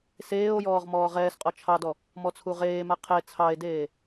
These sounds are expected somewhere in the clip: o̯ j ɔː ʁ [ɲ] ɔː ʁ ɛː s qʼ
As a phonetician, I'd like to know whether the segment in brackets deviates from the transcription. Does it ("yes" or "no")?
yes